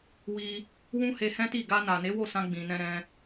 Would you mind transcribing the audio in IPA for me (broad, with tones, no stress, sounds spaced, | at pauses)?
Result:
w i˧ | w ũ˦ h e˧ h ɛ̃˦ t i˦˨ ɡ a˧ n a˨ n e˨˦ w o˦˨ s ã˧ ɡ͡b ĩ˨ n ɛ̃˧ ɾ ɛ̃˧